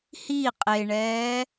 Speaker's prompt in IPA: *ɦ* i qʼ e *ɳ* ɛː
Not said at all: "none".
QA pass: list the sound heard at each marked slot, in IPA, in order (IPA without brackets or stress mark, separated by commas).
h, ɳ